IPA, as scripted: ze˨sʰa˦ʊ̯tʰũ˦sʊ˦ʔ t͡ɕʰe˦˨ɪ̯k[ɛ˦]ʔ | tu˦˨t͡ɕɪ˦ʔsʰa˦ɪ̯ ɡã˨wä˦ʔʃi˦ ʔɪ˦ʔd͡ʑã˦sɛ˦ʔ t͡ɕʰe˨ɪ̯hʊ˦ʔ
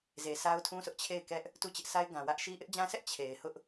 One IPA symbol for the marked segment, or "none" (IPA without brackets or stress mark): ɛ˦